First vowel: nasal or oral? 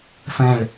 nasal